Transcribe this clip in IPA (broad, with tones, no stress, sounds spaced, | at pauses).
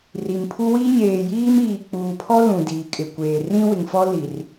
r i˨ m pʰ u˦ w i˦ ɲ eː˨ j iː˦ m iː˨ k͡p uː˨ pʰ ɔ˦ l ũ˨ d iː˨ kʼ ɪ˨ kʷ eː˨ r ĩ˦ w ɪ˨ ŋ f ɔ˦ l i˨ r